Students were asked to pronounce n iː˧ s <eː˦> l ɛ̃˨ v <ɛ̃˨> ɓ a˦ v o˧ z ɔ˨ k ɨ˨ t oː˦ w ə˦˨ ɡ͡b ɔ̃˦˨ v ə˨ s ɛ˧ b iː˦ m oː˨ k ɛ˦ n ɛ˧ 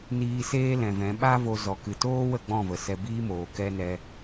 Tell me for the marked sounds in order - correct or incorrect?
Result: correct, incorrect

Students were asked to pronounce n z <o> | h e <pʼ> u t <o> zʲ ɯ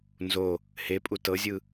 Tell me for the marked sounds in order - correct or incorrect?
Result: correct, correct, incorrect

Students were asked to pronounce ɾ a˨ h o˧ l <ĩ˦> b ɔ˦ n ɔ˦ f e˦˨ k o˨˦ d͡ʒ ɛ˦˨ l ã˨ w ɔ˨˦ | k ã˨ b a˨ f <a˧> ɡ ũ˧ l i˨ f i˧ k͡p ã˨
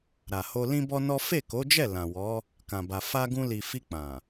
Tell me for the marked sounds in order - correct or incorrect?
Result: correct, correct

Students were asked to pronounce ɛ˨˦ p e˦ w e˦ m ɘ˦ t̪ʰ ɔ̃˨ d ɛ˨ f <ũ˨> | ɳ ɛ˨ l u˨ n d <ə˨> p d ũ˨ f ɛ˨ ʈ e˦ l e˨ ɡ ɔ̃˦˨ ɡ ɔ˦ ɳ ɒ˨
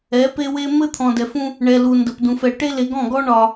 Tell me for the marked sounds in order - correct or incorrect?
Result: incorrect, correct

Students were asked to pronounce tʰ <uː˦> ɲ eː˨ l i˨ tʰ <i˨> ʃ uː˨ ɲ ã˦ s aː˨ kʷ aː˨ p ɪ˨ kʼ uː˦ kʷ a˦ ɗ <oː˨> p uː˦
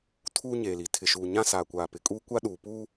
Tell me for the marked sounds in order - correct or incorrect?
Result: correct, incorrect, incorrect

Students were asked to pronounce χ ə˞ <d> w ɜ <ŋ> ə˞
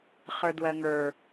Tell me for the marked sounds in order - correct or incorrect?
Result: correct, correct

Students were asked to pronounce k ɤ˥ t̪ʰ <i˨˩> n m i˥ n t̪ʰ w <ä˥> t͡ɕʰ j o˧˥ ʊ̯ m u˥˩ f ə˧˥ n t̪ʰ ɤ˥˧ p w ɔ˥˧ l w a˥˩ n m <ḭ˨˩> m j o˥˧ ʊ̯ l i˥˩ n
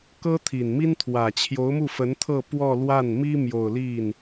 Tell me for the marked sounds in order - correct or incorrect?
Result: correct, incorrect, incorrect

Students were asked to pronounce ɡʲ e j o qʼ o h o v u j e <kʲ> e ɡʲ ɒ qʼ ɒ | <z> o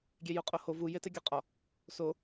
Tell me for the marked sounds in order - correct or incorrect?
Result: incorrect, incorrect

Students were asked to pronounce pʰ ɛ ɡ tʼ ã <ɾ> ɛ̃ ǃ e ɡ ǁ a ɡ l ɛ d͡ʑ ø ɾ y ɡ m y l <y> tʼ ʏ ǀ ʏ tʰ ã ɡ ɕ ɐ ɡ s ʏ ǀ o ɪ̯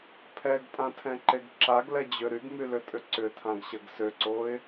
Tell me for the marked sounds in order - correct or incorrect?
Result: incorrect, incorrect

